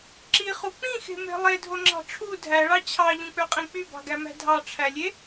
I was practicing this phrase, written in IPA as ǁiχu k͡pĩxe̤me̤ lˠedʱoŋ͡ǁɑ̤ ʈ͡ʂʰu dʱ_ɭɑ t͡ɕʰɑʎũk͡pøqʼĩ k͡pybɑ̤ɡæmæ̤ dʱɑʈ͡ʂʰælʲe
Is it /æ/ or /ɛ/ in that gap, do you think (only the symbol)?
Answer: æ